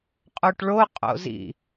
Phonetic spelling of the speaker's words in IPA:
qʼ o ʈ ɭ o qʼ o̰ z ḭ

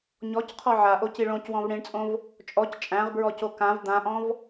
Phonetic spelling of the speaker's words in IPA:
ɲ ɔ c qʰ ɔ ʕ a ʔ o c i ɭ õ c w ɔ̃ v ɽ ĩ ɳ t͡sʼ õ v | t͡ʃʼ ɔ c t͡ʃʼ æ̃ ʁ b ɹ ɔ c o k ã v d̪ ã ʔ ɔ̃ v

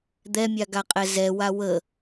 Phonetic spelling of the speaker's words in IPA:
d̪ ɛ mʲ a ɡ a qʼ ɛ z ɛ w a w ə

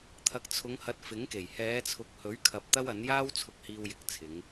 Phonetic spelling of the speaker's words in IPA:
t̪ʰ ɐ˨ k̚ t͡sʰ ʊ˨˧ ŋ h ɐ˨˥ t̚ f ɪ˨˥ ŋ k e˨˩ j h ɛː˨˧ t͡sʰ ʊ˨ k̚ h ɵ˨˥ ɥ kʰ ɐ˨ p̚ t̪ ɐ˥ w ɐ˨˥ n j aː˥ w t͡sʰ ʊ˧ k̚ h iː˧ w j ɪ˨˥ k̚ t͡sʰ ɪ˨˧ ŋ

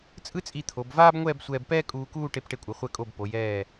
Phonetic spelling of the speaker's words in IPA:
t͡sʼ ɯ˥ t͡sʼ i˧ t̪ʰ o˩˧ b v aː˥ b ŋʷ ɛː˥˧ b sʷ ɛː˧ b p ɛː˥ kʼ uː˧ k uː˥˧ ʈ e˧ p ʈ e˧ kʷʼ ɯ˩˧ χʷ ɛ˧ kʼ o˧˩ b p o˩˧ j ɛː˧˩

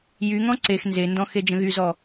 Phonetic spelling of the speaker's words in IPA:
j y ŋ ɔ̃ ǀ e x n z e n d ɔ̃ x e d͡ʒ ə̃ ɣ y z ɔ

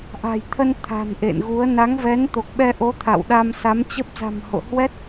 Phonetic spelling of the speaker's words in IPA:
ʔ a̤˨˩ j t̪ʰ ə˧ n t̪ʰ a̤˨˩ n ʔ ḛ˧˨ n ɣ u˨˦ ə̯ n a˨˦ ŋ v ɛ˨˦ n t̪ o˨˩ k̚ ɓ ɛ˧ ʔ o˨˦ t̪ʰ a̰˧˨ w ɗ a˧ m s a˨˦ m t͡ɕ ə˦˥ p̚ z a̤˨˩ m h o̰˧˨ h w ɛ˦˥ t̚

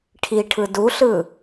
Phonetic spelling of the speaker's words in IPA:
ʈʰ i ʈʰ ɯ d u ɬ ɯ

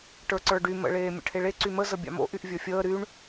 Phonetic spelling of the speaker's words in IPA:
ʈ ə˞ ǀ ə˞ ɖ y m ə̰ ɭ eː mʲ ə̰ ʈʰ e ɭ e ǀ y m ə z ə bʲ a̰ m o̰ ʔ y ʔ vʲ ə˞ fʲ əː ɾ y ɳ

